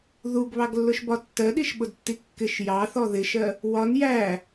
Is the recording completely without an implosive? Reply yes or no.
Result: no